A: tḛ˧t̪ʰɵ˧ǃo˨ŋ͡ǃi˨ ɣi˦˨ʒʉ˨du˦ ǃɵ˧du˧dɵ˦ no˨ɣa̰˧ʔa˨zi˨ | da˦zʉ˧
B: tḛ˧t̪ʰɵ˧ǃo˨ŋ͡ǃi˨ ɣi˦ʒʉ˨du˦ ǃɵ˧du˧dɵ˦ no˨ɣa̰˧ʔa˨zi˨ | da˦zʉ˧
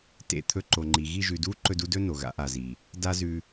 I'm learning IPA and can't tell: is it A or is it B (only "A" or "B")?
A